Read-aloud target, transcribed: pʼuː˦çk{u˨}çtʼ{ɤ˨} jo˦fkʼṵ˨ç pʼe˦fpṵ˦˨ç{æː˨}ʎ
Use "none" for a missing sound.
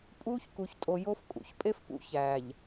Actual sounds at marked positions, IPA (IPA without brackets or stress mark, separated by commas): u˨, o˨, æː˨